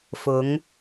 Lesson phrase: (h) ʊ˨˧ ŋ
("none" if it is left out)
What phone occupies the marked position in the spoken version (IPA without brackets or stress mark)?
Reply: f